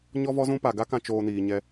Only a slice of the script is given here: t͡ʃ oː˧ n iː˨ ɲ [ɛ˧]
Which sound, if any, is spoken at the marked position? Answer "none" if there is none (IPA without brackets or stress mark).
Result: ɛ˧